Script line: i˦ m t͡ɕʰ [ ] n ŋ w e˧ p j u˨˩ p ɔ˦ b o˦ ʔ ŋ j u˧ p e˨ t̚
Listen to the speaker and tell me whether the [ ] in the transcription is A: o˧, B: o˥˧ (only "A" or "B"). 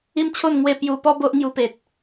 B